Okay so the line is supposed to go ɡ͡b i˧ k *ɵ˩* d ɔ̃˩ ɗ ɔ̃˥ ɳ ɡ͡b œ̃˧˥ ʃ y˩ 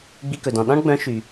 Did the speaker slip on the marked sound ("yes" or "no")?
no